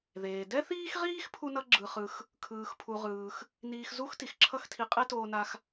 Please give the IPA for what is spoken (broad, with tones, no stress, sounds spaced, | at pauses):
ð eː˩ d ɛ˥ θ iː˥ x ʁ iː˥ x pʰ u˥ n ʌ˥ ɡ͡ǁ ɯ˧ χ ɯ˧ x | kʰ ɯː˧ x pʰ u˧ ʁ ɯː˧ x | n iː˧ x z u˥ x t i˩ x ǁʰ ʌ˥ x tʰ i˧ qʼ e˥ t oː˧ n a˧ x